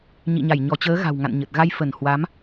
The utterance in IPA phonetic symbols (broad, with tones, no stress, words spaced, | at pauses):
ɲḭ˧˨ɲa˧˩j ɲɔ˧˩t͡ɕəː˨˦ ɣa̤˨˩wŋa̰˧˨nɲə˨˩t̚ ɣa˧jfə˧˩n hwa˨˦m